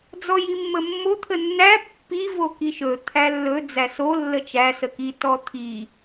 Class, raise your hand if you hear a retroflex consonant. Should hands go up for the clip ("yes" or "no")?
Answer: no